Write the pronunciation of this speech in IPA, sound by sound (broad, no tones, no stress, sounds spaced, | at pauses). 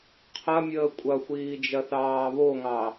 qʰ ɐ mʲ əː kʷʼ ɐ xʷ iː d͡ʒ ɐ θ ɑː β o ŋ ɑ